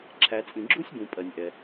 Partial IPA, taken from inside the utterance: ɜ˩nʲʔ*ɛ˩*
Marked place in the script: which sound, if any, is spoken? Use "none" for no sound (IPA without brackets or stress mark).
ɛ˩